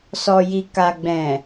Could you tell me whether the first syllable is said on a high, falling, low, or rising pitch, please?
low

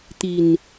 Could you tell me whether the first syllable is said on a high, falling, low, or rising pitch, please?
low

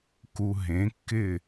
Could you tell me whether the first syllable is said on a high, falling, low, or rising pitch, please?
low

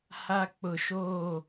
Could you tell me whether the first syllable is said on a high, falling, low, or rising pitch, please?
high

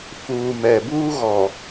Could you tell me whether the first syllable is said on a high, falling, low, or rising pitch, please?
low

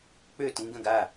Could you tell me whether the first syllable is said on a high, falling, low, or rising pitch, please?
falling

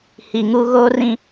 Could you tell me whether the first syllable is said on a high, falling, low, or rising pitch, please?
low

